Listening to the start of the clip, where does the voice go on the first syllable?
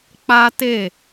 high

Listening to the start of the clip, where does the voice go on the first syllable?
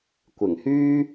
low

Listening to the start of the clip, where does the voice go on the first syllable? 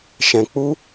low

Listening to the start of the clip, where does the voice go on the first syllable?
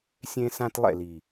high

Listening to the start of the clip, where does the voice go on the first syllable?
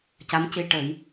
rising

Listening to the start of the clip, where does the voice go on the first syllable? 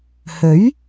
rising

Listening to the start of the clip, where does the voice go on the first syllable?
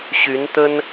rising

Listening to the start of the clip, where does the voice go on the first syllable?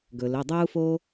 low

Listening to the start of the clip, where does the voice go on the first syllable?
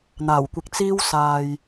low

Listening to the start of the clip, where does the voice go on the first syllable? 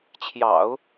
low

